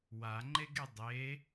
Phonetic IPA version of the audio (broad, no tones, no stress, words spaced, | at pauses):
waŋ͡ǃeɡe dˤe